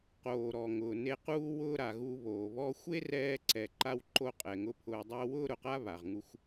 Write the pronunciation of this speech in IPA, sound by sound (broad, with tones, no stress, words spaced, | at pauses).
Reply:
qoː˩ɾɔ˩ ŋʊː˩ ne˧quː˥wʊː˥ ɾa˩ɣu˧ βoː˩βɔ˥ xʷe˥rɛː˧ǀɛ˩ ǃa˥w ǃo˧qʼɛ˩ŋʊ˧ pʰʊː˧ dˤʊː˥ wʊː˥ɾʊ˩qa˥ βa˩ʁŋu˧xʷ